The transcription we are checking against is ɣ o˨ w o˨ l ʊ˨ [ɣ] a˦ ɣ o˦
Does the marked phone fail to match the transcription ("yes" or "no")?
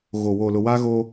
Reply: yes